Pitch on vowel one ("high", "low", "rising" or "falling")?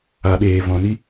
low